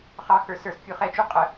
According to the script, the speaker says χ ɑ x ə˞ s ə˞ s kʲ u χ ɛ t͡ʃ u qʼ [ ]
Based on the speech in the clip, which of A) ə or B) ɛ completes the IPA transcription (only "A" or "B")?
A